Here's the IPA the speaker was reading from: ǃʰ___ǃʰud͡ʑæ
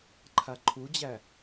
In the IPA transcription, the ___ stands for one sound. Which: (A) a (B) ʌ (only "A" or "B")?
A